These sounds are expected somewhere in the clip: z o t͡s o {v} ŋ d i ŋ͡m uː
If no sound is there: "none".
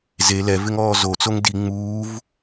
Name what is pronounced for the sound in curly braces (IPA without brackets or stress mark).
none